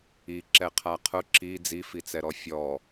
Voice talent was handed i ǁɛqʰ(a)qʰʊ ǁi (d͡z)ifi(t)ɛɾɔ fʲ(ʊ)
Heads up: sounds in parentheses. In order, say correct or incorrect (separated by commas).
correct, correct, incorrect, incorrect